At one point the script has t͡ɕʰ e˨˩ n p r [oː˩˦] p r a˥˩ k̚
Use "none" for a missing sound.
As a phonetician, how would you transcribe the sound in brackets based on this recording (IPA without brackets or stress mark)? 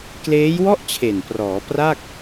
ɔː˩˦